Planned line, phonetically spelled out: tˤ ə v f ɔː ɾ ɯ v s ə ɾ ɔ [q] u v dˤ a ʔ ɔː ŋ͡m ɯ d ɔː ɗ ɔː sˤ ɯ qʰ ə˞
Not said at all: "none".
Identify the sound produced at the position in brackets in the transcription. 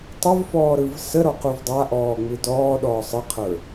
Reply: q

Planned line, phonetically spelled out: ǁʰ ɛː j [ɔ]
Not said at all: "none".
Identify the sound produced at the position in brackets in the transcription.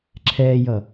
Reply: ʌ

